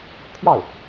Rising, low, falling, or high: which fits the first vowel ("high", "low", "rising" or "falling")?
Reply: falling